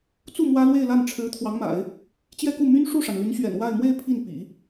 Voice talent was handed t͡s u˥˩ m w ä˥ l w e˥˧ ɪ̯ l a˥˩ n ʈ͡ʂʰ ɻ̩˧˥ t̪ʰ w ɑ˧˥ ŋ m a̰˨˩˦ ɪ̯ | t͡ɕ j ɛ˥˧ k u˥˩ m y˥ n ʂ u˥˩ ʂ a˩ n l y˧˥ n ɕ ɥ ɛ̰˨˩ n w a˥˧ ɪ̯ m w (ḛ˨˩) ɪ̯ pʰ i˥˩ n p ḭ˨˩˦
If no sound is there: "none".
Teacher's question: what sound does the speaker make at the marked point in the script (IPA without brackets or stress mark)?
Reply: e˥˧